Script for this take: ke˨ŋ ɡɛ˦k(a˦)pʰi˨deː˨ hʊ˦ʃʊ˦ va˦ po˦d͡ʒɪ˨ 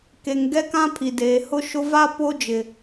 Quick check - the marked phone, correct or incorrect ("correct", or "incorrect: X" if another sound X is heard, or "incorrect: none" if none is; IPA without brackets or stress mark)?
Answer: incorrect: ã˦